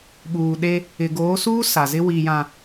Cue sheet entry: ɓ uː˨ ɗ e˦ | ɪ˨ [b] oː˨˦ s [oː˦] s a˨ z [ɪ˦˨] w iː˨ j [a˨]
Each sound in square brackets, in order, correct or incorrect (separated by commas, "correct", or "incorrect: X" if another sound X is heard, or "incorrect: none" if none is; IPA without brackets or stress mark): incorrect: ɡ, incorrect: uː˦, incorrect: ɪ˦, incorrect: ã˨